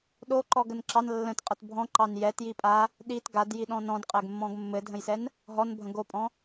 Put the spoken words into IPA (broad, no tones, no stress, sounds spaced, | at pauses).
ɗ o ǃ ɔ ɡ ə n ǁ ɑ n lː ə̃ t qʼ ə t bʱ ɔ̃ ǃ ɑ n j ɛ t j i pʼ a | ɗ i t ɡ a d j i ɗ ɔ̃ n ɔ̃ d qʼ ɛ ɡ mː ɔ̃ ɡ mː ɘ dʱ ə̃ j s ɛ n | ɦ ɔ n bʱ ə̃ ɡ o pʼ ɔ̃